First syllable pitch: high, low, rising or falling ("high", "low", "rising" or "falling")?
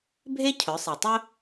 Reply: high